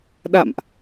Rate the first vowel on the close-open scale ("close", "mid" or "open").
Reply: open